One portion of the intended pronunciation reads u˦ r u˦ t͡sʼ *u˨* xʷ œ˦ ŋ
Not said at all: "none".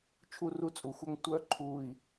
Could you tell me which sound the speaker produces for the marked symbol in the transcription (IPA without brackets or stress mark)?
u˨